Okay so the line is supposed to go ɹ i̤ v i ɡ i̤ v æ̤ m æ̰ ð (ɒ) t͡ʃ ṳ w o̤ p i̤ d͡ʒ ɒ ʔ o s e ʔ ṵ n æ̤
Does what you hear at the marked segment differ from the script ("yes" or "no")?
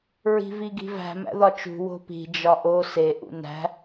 no